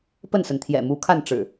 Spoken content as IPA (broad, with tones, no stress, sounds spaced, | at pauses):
p ə˥˨ n s ə˩ n t̪ʰ j ɛ̰˨˩ m u˨˦ kʰ a˥˨ n ʈ͡ʂ ɻ̩˨˩